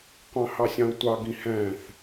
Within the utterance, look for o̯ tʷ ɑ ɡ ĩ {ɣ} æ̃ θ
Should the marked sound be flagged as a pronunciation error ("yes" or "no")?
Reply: yes